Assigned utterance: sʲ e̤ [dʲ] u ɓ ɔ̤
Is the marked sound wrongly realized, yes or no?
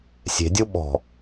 no